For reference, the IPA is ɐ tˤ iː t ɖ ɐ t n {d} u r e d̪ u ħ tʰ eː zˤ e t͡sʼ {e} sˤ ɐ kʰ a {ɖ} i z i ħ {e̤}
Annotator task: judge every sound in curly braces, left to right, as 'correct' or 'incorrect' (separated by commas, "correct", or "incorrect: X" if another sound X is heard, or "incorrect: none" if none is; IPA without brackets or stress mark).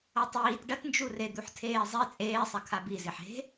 incorrect: d͡ʒ, incorrect: eː, incorrect: b, correct